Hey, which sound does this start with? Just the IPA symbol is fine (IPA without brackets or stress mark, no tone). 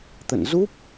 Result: t̪